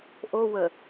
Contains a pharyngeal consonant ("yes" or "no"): no